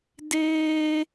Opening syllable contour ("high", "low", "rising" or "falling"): high